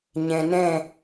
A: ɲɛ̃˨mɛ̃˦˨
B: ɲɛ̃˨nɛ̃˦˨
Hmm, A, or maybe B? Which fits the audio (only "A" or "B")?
B